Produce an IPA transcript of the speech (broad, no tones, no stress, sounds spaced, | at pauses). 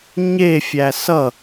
ɲ e fʲ æ s ʌ